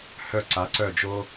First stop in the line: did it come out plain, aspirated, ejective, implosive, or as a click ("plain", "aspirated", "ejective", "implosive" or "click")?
click